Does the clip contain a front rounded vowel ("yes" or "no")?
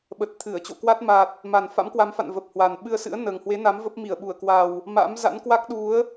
no